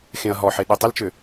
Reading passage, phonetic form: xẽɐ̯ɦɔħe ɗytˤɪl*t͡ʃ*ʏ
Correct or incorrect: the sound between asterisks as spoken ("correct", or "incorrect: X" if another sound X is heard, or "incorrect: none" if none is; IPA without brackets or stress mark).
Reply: correct